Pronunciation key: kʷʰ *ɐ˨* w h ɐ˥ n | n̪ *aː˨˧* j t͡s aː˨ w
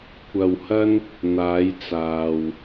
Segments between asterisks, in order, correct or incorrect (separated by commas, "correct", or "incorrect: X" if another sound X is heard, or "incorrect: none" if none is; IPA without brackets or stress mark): correct, correct